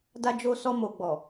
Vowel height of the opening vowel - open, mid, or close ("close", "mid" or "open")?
open